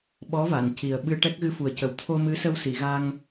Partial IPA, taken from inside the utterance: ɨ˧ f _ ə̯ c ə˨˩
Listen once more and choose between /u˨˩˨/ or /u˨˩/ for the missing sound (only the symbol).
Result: u˨˩